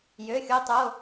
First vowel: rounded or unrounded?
rounded